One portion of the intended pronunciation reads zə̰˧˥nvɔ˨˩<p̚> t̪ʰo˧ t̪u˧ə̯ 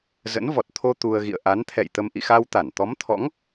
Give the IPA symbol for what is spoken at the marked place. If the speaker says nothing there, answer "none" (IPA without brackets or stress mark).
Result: t̚